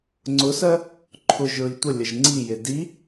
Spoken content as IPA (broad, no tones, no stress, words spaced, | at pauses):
ŋ͡ǀʊsɜ | ǃʰʊʒɹi tʷəlʲəʒ ŋ͡ǀije di